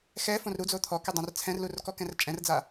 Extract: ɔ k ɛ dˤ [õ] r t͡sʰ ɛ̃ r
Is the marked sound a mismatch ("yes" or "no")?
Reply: no